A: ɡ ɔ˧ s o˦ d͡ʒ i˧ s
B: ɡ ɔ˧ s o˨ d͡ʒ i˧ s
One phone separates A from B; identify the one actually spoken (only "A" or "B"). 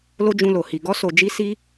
B